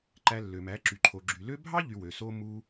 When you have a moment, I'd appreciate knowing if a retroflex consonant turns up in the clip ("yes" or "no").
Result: no